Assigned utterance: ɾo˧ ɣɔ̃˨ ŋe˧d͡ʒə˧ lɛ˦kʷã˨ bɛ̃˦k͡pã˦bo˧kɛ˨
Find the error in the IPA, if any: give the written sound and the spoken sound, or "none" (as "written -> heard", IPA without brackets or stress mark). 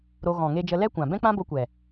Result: k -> kʷ